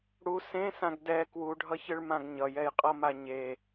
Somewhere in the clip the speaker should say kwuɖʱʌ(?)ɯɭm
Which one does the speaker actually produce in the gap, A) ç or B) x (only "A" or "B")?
A